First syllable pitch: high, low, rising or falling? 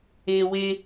low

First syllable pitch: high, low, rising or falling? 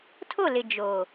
falling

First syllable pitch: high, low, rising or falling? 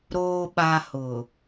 low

